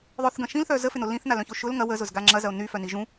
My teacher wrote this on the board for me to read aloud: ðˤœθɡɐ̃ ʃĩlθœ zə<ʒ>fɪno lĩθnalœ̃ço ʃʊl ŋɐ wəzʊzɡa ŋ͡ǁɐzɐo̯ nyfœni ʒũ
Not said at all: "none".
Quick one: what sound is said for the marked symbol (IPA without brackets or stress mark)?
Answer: none